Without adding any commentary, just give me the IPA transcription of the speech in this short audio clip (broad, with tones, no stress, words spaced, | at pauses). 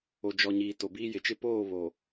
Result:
o˨d͡ʒɔ˨ɲiː˨ to˨biː˦ jɪ˨t͡ʃɪ˦ poː˦˨βo˨